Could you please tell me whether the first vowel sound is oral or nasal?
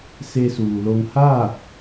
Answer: oral